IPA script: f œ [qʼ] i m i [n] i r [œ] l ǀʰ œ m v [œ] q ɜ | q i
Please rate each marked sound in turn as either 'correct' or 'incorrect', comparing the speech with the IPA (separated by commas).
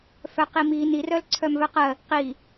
incorrect, correct, correct, correct